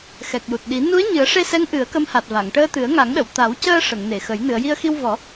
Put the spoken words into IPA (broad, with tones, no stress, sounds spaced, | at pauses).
x ɛ˨˩ k̚ j u˨˩ t̚ ɗ i˨˩˦ n u˧˥ ə̯ ɲ ɨ˨˩˦ ə̯ ʂ e˧ s ɛ˧˥ ŋ ʔ ɨ˨˩˦ ə̯ k ə˧˥ m h a˨˩ t̚ v a˨˩˨ ŋ ʈ əː˧ t̪ ɨ˨˩˦ ə̯ ŋ a˨˩˦ ŋ ɗ ə˨˩˨ w t̪ a˨˩˦ w c əː˧ ʂ ə˨˩˨ ŋ n e˨˩˨ x ə˨˩˦ j n ɨ˨˩˨ ə̯ j i˧ ə̯ x i˧ w v ɔ˨˩˦